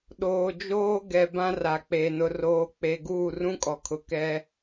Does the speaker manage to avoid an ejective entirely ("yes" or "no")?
no